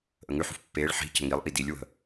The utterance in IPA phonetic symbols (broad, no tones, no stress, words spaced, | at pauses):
ʔəŋʉħṳf pːeːɭ ħi̤ cə̤ŋilˠʔi dilʲwə̤